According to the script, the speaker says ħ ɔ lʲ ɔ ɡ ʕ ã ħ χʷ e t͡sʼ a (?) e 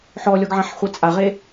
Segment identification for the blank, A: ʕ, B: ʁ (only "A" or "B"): B